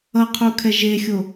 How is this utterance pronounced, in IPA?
ʌ qʰ u kʰ ɛ ʒ e xʲ o

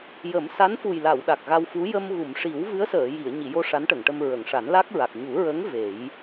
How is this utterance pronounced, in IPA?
j ə˨˩˦ m s a˧˥ n f u˨˩ j l a˨˩˨ w ɗ a˨˩ k̚ ɣ a˧ w f u˧˥ j ə˧ m ɣ u˨˩˨ m ʂ i˨˩˦ w v ɨ˧˥ ə̯ s əː˨˩˨ j i˨˩˨ ə̯ ɲ i˨˩˨ j o˧ ʂ a˧˥ n ʈ ə˨˩˨ ŋ ʈ ə˧ m ɹ ə˨˩˨ ŋ ʂ a˨˩˦ n l a˦˥ k̚ ɹ a˨˩ k̚ ɲ u˨˩˦ ɹ ə˧˥ ŋ v e˨˩˦ j

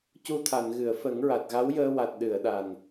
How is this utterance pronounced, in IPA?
c u˧ t̪ʰ a˨˩˨ n ɣ ɨ˨˩˨ ə̯ f ə˨˩˦ ŋ ɹ a˨˩ t̚ ɣ a˧˥ w j əː˧ w a˨˩ t̚ ɗ ɨ˨˩˨ ə̯ ɗ a˨˩ n

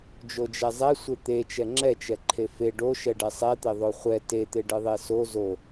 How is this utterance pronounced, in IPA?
d͡ʒ o d͡ʒ ɛ zˤ ɛ sʷ e t̪ e t͡ʃ ɛ ŋ͡ǁ ɛ t͡ʃ ɛ ǃʰ e f e ɖ o ʃ ɛ ɖ ɛ sˤ ɛ t̪ e ðˤ o χʷ ɛ t e t̪ e ɖ ɨ ðˤ e s o z o

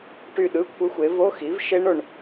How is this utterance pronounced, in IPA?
ʈ y˥˧ ɗ ɯ˧˥˧ kʷʰ ɯ˦˥ xʷ e˨˥ v o˧˥˧ x i˨˥ v ʃ e˦˥ ɳ o˨ ɳ

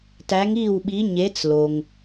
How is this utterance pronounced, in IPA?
t æ˨˥ ŋ iː˥˩ w ɓ i˨˥ ɲ e˨˥ t͡s l o˩ ŋ

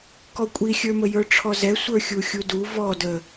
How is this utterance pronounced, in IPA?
k ɔ kʷʼ i xʲ ə˞ m ə j ə˞ ʈ͡ʂʰ ɔ z ɛ sʷ ə˞ xʲ u xʲ u d u v ɔ d ə

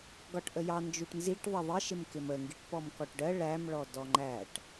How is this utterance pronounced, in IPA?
ɡ ɒ ʈ ʔ ə j ɑ n d͡ʒ u ʈ n z i ʈ ðˤ ɪ ðˤ ɪ ʃ ɪ m k ɪ m ə ŋ ɡ i ʈ p ɔ m k ɔ ʈ ɖ ɜ ɭ æ m ɭ ɔ d ɔ ŋ͡ǃ æ ʈ

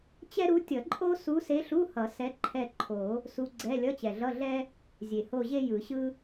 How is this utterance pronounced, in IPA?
t͡ɕ ɛ˥ ɾ u˧˥ tʲ ʌ˨˩˦ ǃʼ o˥ s u˧˥ s e˧˥ ɬ u˧˥˧ h ʌ˨˩˦ s ɛ˧˥ ǃʰ ɛ˦˨ ǃʰ o˨˩˦ | s u˧˥ ɡ͡ǀ ɛ˧˥˧ lʲ ʌ˧˥˧ t͡ɕ ɛ˨˩ ɮ ʌ˧˥˧ ɮ ɛ˥ | zʲ e˨˩ h o˦˨ ʑ e˥ j ɯ˨˩˦ ɕ ɯ˥

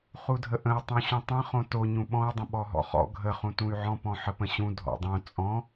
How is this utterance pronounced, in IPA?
χ u dʱ ə ʔ ə̃ u̯ tˤ ũ ɕ ũ tˤ ə̃ χ õ t o ɲ ũ ɓ ɔ̃ y̯ dˤ ə̃ ɓ ɔ ɦ ɔ̰ χ ɔ̰ ɡʱ ə χ ũ t ũ y̯ ʕ ɔ̃ p ɔ̃ ħ ə p ə̃ ɕ ũ dʱ ɔ̰ dˤ õ t͡sʼ ɔ̃

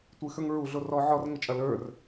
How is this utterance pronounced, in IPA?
tʷ ɨ x ə˞ ŋ ɹ u ɮ o r ɔ ʕ ɔ r ŋ ɘ t͡ʃʼ ɐ l ə˞ r

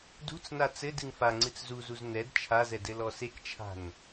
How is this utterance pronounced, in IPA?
d ṳ t͡s n a t͡s ɘ d ɨ ŋ f a ŋ͡ǀ ɨ t͡s z u z u z n ɛ d t͡ʃʰ a z ɛ d ɘ l ɔ s e k t͡ʃʰ a̤ n

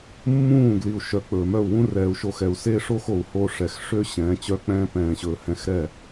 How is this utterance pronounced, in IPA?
mː ũː˦˨ ɡ l i˨ u̯ ʃ œ˨ k͡p ɵː˨ m œ˦˨ u̯ w ũ˦ r ɛː˨ u̯ ʃ o˧ x ɛ˨ u̯ s e˦ ʂ o˦ x o˨ u̯ h o˧ ʂ ɛ˨ x ʂ ø˦ ɕ ɛ̃ː˨˦ t͡ɕ œ˧ k͡p ɛ̃ː˧ p ɛ̃ː˨ ɕ ɵː˨ h ɛ̃˧ x ɾ ɛ˦˨

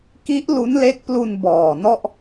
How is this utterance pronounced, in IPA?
k i˦˥ ʔ l u˦˥ n l e˦˥ k̚ p l u˧ n b ɔː˨˩ n ɔ˥˩ ʔ

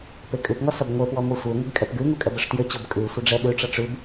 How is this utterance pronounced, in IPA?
p e kʼ ʉ p ŋ ɔ s ʌ b ŋʷ e p w ɔ ŋʷ ɘ sʷ e ŋʷ ə ɡ kʼ ɛ p ɡ ʉ ŋ u kʼ ɛ b ə ʂ t j ɘ t͡ɕ o b kʼ ʉ sʷ ə ɖ͡ʐ ɛ ɗ ʉ ʈ͡ʂ ʌ ʈ͡ʂ ʉ b

